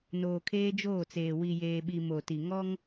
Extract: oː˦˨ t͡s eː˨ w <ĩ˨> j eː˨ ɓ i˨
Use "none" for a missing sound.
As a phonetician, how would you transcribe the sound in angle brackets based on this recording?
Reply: i˨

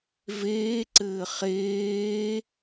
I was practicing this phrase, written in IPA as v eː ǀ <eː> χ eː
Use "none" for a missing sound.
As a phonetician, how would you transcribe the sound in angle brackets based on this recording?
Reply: ɘː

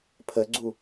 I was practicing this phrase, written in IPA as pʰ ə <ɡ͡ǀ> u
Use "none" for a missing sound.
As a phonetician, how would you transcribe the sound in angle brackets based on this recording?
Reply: ɡ͡ǀ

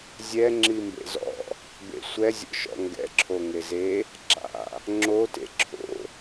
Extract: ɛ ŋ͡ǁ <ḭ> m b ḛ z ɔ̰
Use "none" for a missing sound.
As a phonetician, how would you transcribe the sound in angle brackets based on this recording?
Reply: i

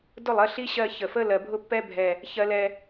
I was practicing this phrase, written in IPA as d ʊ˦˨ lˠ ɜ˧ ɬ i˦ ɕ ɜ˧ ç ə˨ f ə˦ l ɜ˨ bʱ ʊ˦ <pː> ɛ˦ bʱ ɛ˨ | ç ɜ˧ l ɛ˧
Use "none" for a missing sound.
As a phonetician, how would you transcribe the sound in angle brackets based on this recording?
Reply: pː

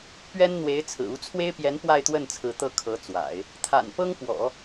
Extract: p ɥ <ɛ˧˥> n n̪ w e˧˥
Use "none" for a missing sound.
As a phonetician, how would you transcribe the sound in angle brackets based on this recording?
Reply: ɛ˥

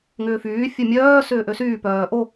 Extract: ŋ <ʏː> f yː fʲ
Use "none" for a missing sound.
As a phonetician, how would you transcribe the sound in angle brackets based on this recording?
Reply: ʏː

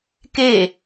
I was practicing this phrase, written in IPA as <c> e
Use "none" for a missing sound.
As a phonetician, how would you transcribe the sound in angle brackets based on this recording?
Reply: k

